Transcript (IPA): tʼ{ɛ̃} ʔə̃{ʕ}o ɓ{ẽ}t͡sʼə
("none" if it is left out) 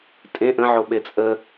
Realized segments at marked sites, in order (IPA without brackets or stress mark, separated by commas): ẽ, ʕ, e